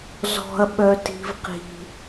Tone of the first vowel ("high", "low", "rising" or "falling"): high